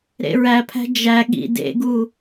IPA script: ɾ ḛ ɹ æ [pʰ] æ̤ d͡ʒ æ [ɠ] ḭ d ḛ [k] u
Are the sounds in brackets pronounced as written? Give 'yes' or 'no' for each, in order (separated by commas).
yes, yes, no